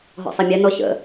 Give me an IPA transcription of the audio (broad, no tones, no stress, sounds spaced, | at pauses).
ɦ ɔ̰ sˤ a mʲ ɛ n ɔ ɕ ə̰